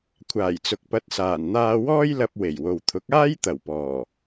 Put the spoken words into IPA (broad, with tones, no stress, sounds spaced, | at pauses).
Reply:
kʷʰ aː˨˩ j t͡s ʊ˨ k̚ p ɐ˨˥ t̚ s aː˨˩ n n̪ aː˧ w ɔː˥ j l ɐ˧ p̚ w e˨˩ j w o˨ w t̪ʰ ʊ˨˥ k̚ aː˥ j t̪ ɐ˨˩ w p ɔː˨˩